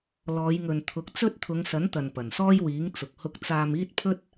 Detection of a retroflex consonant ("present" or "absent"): absent